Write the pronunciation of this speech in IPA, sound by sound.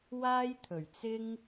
w aː˥ j t̪ʰ ɵ˨˩ ɥ t͡s ɪ˥ ŋ

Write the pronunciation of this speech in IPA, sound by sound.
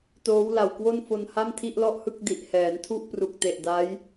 t oː˦˥ w l a˨˩ w k w o˥˩ n f o˧ n h a˥˩ m tʰ i˥˩ ʔ l ɔ˥˩ ʔ h ɯ˥˩ k̚ d i˨˩ ʔ h ɛː˩˦ n tʰ u˥˩ ʔ p r u˨˩ k̚ t e˨˩ ʔ d a˦˥ j

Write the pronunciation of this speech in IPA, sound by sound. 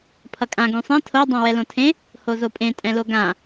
pʰ ʌ kʼ ã ɡ ũ sˤ ẽ tʰ o dˤ ã w ɛ l õ tʰ ẽ | h o z o pʼ ẽ tʼ ɛ̃ l o ɡ ã

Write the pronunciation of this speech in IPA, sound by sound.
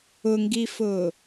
ʊ ŋ ɡ i f ʊː

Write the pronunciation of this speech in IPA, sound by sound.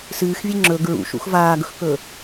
s ɨː x vʲ e ŋ͡ǁ ɵ ɡ ɹ ṵ ʃ ṵ x v aː ɡ ɵ x k ɵ

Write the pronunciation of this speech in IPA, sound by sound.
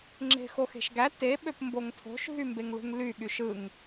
ŋ͡ǁ e̤ x o x e̤ ʃ ɡ æ t e ɓ ø p m b o ŋ tʰ o̤ ʃ ɦ y m b e ŋ l ṳ ŋ l y ɠ y ʃ ɯ ŋ

